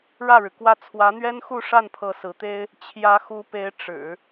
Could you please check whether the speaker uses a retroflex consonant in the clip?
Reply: yes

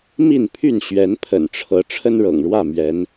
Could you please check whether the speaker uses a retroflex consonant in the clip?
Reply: yes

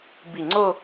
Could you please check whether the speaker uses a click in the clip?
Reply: yes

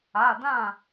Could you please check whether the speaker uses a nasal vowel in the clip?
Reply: yes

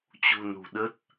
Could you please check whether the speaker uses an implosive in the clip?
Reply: yes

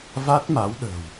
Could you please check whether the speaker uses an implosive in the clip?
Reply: yes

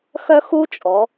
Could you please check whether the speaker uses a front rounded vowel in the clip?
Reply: yes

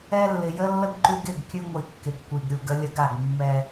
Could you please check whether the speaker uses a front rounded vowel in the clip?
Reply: no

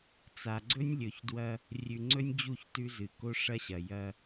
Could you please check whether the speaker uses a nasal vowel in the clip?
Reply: no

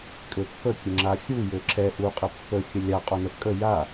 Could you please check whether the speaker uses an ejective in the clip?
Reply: yes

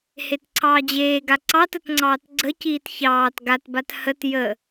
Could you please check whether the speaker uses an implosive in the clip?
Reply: no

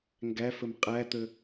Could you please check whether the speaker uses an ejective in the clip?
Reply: yes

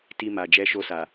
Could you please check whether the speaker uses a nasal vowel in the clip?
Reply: no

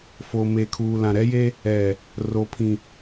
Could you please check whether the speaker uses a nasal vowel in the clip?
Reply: yes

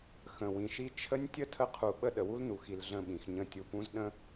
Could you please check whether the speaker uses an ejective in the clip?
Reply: no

